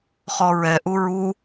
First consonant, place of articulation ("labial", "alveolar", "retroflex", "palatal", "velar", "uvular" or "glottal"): uvular